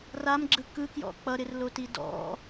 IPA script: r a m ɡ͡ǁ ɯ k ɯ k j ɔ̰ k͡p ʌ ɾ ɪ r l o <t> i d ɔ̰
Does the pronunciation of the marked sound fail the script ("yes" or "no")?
no